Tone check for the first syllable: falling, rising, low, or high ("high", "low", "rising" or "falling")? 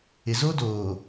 low